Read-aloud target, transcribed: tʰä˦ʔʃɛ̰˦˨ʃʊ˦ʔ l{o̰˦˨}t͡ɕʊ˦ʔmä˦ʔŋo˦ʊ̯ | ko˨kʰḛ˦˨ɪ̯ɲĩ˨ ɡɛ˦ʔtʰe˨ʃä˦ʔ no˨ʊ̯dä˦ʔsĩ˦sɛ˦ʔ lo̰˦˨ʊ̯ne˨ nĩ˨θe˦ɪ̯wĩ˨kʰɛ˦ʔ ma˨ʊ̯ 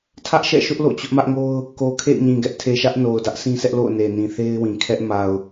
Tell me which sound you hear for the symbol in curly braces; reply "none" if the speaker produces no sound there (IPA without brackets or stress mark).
o̰˦˨